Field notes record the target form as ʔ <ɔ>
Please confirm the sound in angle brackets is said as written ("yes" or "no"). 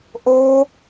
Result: no